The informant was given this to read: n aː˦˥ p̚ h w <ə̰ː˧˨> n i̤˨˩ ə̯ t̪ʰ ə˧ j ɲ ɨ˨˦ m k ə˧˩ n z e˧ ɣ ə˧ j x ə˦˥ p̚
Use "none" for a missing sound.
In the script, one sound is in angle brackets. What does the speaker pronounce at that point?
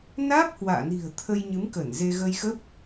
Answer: a̰ː˧˨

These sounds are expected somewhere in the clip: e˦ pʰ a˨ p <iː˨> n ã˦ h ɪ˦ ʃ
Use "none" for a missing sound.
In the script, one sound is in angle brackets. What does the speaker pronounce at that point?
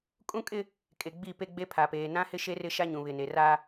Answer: eː˨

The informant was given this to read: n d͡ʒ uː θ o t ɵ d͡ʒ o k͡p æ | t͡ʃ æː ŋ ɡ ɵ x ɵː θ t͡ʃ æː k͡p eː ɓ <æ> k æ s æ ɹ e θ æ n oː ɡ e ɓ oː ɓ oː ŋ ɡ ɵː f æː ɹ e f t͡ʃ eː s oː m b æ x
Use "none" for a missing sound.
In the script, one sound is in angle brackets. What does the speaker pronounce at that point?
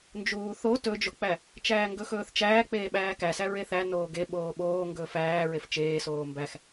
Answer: æː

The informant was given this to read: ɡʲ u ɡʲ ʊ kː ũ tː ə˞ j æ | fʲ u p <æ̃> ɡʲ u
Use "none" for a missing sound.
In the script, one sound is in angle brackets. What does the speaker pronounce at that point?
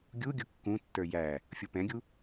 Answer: ɛ̃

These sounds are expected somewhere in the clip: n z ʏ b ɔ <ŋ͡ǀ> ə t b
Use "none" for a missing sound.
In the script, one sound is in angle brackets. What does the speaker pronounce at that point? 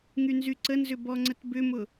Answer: ŋ͡ǀ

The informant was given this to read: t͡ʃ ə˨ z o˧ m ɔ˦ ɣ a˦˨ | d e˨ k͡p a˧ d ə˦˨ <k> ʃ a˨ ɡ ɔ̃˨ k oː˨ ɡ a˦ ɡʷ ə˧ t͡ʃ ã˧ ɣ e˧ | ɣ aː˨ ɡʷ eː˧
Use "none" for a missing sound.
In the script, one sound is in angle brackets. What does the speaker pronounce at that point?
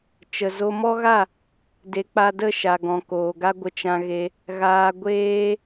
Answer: none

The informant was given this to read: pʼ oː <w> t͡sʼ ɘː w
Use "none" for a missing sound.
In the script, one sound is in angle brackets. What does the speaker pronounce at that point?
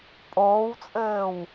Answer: w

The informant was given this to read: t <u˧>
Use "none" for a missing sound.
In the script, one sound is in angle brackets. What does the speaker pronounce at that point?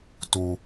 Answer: u˧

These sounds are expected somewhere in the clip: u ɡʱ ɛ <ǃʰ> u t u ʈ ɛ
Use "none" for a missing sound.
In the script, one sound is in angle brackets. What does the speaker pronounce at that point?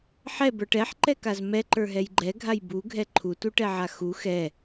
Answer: ǃʰ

